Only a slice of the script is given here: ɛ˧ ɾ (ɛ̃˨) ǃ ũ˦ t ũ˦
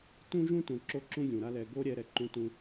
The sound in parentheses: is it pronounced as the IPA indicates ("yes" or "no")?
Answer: no